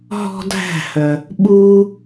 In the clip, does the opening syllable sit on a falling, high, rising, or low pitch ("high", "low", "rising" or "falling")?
high